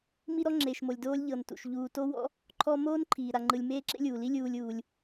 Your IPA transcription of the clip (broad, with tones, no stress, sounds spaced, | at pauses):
m i˦ ɾ ɔ˦ ŋ͡ǁ eː˨ ʃ m o˨ lʲ d oː˦ lʲ ʎ ɤ˨ n t ṵ˩ ʃ ʎ uː˨ t o˦ w ɔ̰˦ | ǃʰ ɔ˦ m oː˥ n ǃʰ iː˩ ɾ a˨ ŋ͡ǃ ɯ˨ lʲ m eː˦ ǁ ḛ˦ lʲ uː˩ l i˦ lʲ uː˨ lʲ uː˩ lʲ